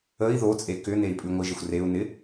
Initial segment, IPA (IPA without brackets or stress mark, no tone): ə